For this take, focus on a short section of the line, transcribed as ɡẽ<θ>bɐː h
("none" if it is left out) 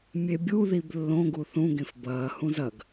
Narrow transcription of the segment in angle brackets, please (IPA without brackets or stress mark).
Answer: f